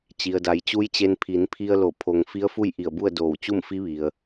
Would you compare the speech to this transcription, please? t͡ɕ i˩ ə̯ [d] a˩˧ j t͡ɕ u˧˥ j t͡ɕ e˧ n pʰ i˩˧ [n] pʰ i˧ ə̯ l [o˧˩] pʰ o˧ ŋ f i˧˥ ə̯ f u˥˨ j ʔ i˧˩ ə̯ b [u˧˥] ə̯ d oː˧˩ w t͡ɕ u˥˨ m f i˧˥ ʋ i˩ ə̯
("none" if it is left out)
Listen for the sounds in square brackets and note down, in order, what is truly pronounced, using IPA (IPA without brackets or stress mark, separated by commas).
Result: d, n, o˧˩, u˥˨